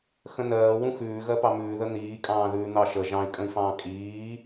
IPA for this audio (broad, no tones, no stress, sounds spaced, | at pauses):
x ə̃ n ɜː w ũ x ʉː ɣ ɜ p ɑ m ʉː ð ə n̪ iː kʼ ɑ̃ː ð ʉː n̪ ɑ ʃ ə ʒ ɑ̃ i̯ kʼ ə̃ i̯ f ɑ̃ː kʼ iː